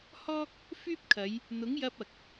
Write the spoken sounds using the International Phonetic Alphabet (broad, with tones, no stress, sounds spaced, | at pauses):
h ɔː˥ k̚ | f yː˥ p̚ kʰ ɐ˨˧ j | n̪ ʊ˨˥ ŋ j ɐ˧ p̚ ɐ˨ k̚